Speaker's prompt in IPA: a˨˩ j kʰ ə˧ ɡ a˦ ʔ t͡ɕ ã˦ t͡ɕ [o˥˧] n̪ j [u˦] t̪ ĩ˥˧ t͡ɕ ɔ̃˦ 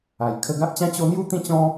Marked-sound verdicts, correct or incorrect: incorrect: o˦, incorrect: u˥˧

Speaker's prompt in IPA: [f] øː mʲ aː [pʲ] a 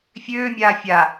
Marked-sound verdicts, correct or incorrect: incorrect: fʲ, incorrect: fʲ

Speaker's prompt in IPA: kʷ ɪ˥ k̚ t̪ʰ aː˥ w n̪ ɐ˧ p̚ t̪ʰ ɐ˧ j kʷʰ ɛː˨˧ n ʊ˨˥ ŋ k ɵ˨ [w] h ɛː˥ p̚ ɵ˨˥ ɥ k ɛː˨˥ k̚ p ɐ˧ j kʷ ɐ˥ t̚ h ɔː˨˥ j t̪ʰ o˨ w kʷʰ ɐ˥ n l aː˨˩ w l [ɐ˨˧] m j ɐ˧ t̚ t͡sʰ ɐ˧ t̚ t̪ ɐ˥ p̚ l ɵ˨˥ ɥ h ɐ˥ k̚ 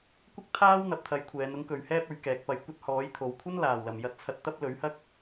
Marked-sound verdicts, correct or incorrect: incorrect: ɥ, incorrect: ɐ˨˩

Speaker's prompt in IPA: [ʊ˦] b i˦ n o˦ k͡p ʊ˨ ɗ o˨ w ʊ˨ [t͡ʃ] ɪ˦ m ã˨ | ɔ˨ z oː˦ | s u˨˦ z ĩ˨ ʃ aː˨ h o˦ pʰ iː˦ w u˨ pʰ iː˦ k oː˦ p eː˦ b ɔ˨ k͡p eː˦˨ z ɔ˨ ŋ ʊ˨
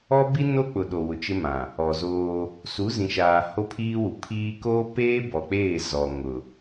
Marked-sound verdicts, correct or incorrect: incorrect: ɔ˦, correct

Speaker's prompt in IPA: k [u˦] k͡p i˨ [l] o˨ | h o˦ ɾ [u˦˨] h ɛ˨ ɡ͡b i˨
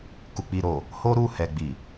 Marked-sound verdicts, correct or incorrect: incorrect: u˨, incorrect: ɾ, correct

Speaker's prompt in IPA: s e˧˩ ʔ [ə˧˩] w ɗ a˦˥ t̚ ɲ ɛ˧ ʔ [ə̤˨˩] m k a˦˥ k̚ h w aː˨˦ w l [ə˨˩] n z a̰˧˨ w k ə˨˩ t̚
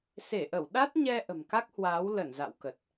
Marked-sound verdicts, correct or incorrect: correct, correct, incorrect: ə˧˩

